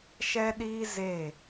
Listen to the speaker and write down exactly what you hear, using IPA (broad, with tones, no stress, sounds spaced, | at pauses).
ʃ ɛ˦ ɗ iː˦ z e˦˨